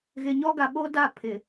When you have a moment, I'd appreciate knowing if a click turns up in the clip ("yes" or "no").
no